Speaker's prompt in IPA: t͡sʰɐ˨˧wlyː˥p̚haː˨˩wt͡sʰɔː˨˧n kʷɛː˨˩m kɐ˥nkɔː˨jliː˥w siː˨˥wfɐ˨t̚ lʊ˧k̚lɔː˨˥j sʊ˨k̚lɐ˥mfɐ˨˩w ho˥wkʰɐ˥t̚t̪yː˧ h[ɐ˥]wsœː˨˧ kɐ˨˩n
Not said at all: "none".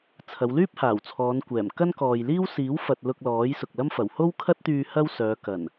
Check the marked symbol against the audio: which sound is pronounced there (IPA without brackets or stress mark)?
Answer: ɐ˥